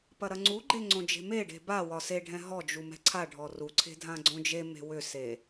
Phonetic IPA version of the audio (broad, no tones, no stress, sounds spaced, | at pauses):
p ɐ ɾ ɐ ŋ͡ǀ u ɡ͡ǃ e ŋ͡ǀ õ d͡ʒ e̤ m e ɖ e̤ b a w ɒ s e ɖʱ ɛ̃ ɦ ɔ d͡ʒ u m ɛ̤ ǀʰ a ɖʱ ɔ r u ǀʰ e̤ dʱ ã ɡ͡ǀ õ d͡ʒ e m e̤ w ʏ s e